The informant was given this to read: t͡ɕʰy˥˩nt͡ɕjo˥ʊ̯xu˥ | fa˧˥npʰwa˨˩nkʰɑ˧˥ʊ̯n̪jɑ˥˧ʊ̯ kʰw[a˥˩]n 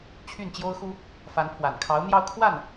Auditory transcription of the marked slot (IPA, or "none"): a˥˩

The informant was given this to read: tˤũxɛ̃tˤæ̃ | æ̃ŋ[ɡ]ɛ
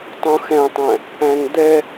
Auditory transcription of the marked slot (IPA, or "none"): d̪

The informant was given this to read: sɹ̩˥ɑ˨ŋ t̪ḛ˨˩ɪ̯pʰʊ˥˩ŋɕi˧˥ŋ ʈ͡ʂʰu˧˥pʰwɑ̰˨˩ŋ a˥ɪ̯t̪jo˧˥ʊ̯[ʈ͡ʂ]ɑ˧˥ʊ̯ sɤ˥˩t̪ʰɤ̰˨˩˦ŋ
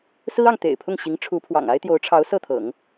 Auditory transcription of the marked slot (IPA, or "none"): ʈ͡ʂʰ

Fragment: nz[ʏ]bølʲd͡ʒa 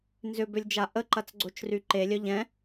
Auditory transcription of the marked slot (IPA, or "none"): ʏ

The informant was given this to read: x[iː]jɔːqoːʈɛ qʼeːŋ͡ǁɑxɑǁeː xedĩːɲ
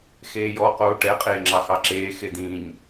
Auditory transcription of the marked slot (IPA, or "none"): eː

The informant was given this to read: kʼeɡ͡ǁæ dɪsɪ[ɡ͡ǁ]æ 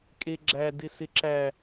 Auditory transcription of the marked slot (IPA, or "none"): ǁ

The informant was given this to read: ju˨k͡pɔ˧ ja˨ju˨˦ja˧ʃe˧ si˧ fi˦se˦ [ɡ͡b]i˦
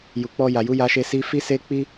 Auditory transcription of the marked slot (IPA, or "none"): k͡p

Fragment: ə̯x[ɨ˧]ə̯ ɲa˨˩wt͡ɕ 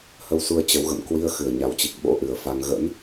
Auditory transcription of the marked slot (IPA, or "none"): ɨ˨˩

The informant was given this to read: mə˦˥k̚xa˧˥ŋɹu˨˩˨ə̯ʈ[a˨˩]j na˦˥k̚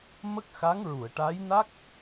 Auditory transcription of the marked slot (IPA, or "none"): a˧˥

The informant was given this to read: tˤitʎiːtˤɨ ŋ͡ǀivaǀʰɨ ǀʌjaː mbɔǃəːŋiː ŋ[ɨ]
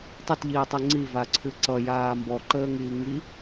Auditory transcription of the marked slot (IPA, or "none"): i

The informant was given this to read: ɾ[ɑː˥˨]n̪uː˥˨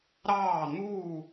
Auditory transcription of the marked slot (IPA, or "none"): ɑː˥˨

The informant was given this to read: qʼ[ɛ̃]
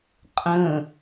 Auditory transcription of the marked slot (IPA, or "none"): ə̃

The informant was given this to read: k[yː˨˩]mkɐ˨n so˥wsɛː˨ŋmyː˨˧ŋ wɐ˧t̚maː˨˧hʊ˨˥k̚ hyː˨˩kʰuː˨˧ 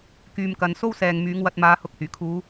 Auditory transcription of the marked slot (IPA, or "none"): yː˨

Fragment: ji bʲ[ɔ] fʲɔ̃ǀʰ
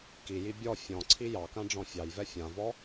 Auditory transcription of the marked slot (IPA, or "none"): ɔ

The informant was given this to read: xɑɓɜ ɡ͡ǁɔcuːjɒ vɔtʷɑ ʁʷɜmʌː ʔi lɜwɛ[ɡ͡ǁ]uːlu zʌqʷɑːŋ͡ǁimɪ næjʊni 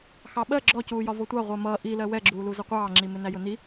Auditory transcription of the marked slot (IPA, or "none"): ɡ͡ǁ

